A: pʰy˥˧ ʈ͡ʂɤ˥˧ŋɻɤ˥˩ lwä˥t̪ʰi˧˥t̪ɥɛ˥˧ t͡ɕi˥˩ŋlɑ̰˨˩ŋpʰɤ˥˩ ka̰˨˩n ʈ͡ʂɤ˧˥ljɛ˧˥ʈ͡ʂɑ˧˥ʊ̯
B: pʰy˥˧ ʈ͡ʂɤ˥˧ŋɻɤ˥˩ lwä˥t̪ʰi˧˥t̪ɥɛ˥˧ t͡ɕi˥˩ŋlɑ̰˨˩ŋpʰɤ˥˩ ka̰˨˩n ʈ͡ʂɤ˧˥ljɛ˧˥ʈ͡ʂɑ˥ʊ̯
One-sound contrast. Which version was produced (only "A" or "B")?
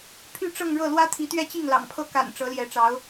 A